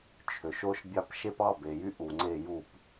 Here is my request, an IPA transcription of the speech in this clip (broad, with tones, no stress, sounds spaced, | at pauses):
t͡ʃʰ ø˩ ʃ o˧ ʃ bʲ ɑ˧ p ʃ e˧ p ɑ˩˧˩ b e˩ j y˧ ʔ u˩ ŋ͡ǀ e˧˩˧ j u˩ p